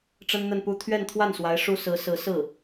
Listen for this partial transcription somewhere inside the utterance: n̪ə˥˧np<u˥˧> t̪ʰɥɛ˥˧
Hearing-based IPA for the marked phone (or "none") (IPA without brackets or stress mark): u˥˧